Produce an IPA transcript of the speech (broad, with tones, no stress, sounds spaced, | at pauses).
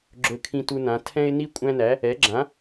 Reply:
ɡ͡ǁ ɵ˦ kʰ ĩ˦ t u˦ n ã˩˥ tʰ ɛ̃˦ ɪ̯ n i˦ kʷʼ æ̃˦ n æ˩˥ | ɛ˩˥ ɡ͡ǁ ã˩˥